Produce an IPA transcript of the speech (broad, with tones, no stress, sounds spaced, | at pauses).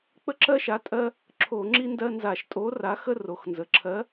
k͡p ə˦ ǁ ɜ˦ ʃ a˨˥ tʼ ɜ˦ | ǁʰ o˧˩˧ ŋ͡ǁ i˦ n d ɜ˦ n z a˧˩˧ ʃ tʼ o˨˥ r a˨˥ x ə˦ r o˩ x n z ə˩ ǁʰ ɜ˨˥